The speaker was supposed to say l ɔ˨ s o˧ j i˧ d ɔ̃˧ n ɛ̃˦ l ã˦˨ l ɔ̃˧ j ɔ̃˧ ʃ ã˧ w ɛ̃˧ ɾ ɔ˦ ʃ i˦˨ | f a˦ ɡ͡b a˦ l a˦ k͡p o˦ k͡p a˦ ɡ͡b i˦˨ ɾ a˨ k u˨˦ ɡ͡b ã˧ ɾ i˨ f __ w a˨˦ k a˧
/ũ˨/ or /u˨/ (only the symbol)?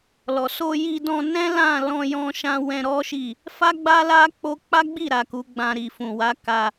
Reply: ũ˨